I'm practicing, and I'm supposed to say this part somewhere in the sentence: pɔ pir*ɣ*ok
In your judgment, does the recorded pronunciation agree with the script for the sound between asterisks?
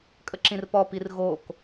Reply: yes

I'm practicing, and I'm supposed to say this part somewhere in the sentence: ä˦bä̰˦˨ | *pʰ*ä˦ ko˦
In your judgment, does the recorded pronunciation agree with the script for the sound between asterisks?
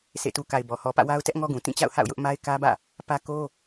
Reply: no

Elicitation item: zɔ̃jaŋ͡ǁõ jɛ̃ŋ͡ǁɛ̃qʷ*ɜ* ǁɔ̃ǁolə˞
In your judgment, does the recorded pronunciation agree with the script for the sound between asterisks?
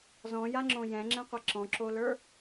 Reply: no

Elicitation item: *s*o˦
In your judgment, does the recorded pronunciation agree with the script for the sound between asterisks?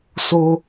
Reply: yes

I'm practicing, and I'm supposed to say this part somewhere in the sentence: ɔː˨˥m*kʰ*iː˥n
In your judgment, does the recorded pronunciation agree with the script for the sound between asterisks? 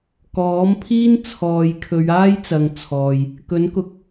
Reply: no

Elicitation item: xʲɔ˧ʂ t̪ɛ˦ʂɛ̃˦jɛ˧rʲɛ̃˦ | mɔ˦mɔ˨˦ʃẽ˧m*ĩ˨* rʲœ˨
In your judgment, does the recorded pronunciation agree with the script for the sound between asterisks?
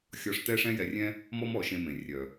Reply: no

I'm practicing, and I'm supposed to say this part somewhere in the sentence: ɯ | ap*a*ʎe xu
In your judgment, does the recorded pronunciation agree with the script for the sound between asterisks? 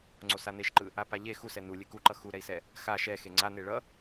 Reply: yes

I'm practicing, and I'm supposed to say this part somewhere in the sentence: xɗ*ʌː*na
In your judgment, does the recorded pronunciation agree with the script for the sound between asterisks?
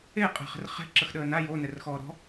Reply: no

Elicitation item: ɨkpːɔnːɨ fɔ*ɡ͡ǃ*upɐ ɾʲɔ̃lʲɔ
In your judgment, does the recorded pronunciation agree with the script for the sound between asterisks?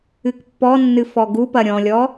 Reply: no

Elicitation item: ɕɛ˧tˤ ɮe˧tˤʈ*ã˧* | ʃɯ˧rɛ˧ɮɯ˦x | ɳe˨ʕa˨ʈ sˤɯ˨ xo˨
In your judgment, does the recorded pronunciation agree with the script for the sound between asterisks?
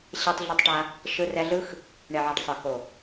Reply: no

